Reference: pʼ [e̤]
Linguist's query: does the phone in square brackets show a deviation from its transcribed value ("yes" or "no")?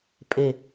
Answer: yes